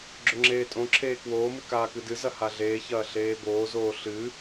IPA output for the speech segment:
ɡ͡ǁ ɵ ŋ͡ǁ eː tʼ õ ǁʰ eː k w oː m ɨ k aː k ɨ d ɨ z ɐ h a ɮ eː ç ɐː ɬ eː b oː z oː ɬ ɨ

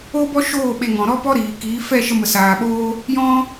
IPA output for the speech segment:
o˦ b ɔ˦ ʃ oː˦˨ ɓ e˧ ŋ ɔ̃˨ ɾ ɔ˦ p ɔ˦ ɾ iː˨ k iː˨˦ f ɛ˦˨ ʃ ə˧ m ə˨ s aː˨ ɓ oː˦ | j ɔ̃˦

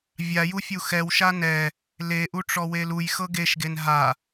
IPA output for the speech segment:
vʲ a j u fʲ u x ɛ w ʃ a n ɛ | l e ʔ u ʈ͡ʂ ɔ w e l u j x ɤ ɡ e ʃ ɡ e n ɦ a

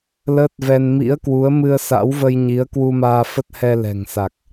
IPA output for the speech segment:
l əː˦˥ t̚ v ɛ˧ n m ḭ˧˥ ə̯ k w u˨˦ ə̯ m ɨ˧ ə̯ s a̰˧˥ w v ə˧ j ɲ i˨˦ ə̯ k w u˧ m aː˧ f ə˦˥ t̚ h ɛ˧ l ɛ̤˨˩ ŋ s a˨˩ k̚

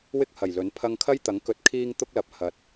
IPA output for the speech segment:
w ɪ˥ k̚ h ɐ˨˩ j l ɵ˨˥ n pʰ ɐ˧ ŋ kʰ ɐ˥ j t̪ ɐ˨˥ ŋ k ɵ˨ t̚ kʰ iː˧ ŋ t̪ ʊ˥ k̚ l ɐ˨˥ p̚ h ɐ˨˥ t̚

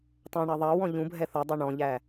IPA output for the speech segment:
tˤ ɛ̃ ɳ ɑ ðˤ ɑ w ɔ̃ ʎ ũ bʱ ɛ θ ɔ dˤ ɛ ɳ ɔ̃ ʎ æ

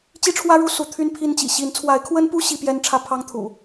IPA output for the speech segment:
t͡ɕ i˦ ʈ͡ʂʰ w ä˦ ɻ u˦ s u˨˦ t̪ʰ y˦ n pʰ i˦ n t͡ɕ ḭ˨˩ ɕ i˨˦ n t͡sʰ w a˨˦ ɪ̯ kʰ w ə˦ n p u˦ ɕ i˦ p j ɛ˦ n ʈ͡ʂʰ ä˦ pʰ ɑ˦ ŋ t̪ʰ ṵ˨˩

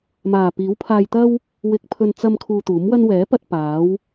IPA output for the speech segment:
m aː˨˩ p iː˨˥ w pʰ aː˧ j t̪ ɐ˥ w | w ɪ˧ k̚ pʰ ɵ˧ n t͡s ɐ˧ m kʰ uː˧ t̪ uː˨˥ m w ɐ˥ n w ɛː˨˥ p ɐ˧ t̚ p aː˨˥ w

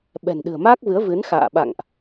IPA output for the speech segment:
ɓ ɛ̤˨˩ n ɗ ɨ̤˨˩ ə̯ m aː˦˥ k̚ v ɨ˨˦ ə̯ v ɨ˨˦ n x a̰ː˧˨ ɓ a̰˧˨ ŋ ʔ

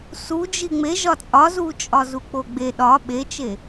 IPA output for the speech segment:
s u d͡ʒ i ŋ͡m e ʒ ɒ t͡sʼ ɒ z u t͡ʃʼ ɒ z u k͡p o ɡ͡b e ɗ ɒ ɓ e t͡ʃ e

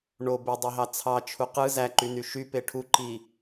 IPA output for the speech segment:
ɳ o b e dˤ o ɦ ɑ t͡sʰ ɑ t͡ʃʰ u q ɯ z æ ǃ y n y ʃ y p e ʈʰ u ǃ i

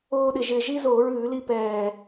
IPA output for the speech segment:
oː˧ ɗ ɪ˨˩ ʒ ɪ˨˩ ʒ i˧ z oː˧˩˧ ɹ ʉː˧˩˧ l i˧ p ɛː˨˩

